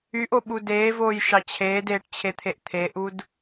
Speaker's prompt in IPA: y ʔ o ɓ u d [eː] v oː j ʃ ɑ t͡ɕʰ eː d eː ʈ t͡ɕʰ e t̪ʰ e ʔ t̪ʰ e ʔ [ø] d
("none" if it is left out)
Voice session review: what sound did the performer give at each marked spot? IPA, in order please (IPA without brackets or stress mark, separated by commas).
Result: eː, u